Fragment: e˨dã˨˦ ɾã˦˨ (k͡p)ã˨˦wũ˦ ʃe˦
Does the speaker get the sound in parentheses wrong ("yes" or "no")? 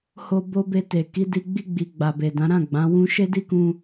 yes